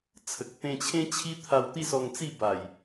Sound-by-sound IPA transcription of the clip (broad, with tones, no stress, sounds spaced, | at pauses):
t͡sʰ ə˨ k̚ t̪ ẽ˧ t͡ɕʰ ẽ˦ t͡ɕʰ i˦ t̪ʰ a˧ w t̪ i˥˧ s ɔ˧ ŋ t͡s i˥˧ b a˨˩ j